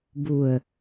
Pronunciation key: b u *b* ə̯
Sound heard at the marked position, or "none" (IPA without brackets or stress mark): none